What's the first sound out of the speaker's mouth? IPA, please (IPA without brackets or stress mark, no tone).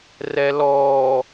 r